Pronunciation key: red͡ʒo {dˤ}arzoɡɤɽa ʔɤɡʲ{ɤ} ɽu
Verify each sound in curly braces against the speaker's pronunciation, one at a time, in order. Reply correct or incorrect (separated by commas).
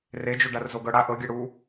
incorrect, correct